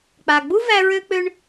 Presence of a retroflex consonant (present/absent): present